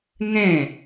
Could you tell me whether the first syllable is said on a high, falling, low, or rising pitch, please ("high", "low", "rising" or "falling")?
falling